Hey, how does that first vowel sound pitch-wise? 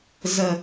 low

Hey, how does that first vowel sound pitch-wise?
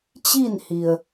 falling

